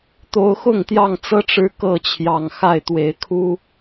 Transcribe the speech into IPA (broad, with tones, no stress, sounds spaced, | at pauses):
t̪ o˨˦ ʊ̯ x ʊ˥˨ ŋ t̪ j ɑ˥˨ ŋ t͡s ɤ˦ ʈ͡ʂ ɻ̩˦ k ɤ˥˨ t͡ɕʰ j ɑ˨˩ ŋ x a˥˨ ɪ̯ t̪ w e˨˦ ɪ̯ kʰ u˦